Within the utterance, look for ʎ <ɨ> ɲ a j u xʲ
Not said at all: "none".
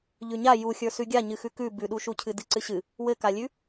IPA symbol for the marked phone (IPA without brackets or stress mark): ʉ